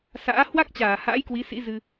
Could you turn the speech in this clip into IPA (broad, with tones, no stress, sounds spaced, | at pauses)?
s a̰ː˧˥ h w a˦˥ k̚ t͡ɕ aː˧˩ h a̰ː˧˥ j k w i˨˦ s ḭ˧˥ z ɨ˧